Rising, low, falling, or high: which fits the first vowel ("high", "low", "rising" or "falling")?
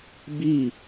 falling